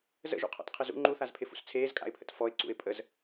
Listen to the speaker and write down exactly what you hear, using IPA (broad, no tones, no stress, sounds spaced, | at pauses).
z ə̰ ʒ ṵ qʰ ɔ̰ t qʰ ɪ z ṵ ŋ͡ǃ u θ a z pʰ ɪ f ṵ s t͡sʰ eː z kʼ a̰ ɪ̯ pʰ ə̰ t f ɔ ɪ̯ ǀ ṵ ɪ̯ pʼ ə z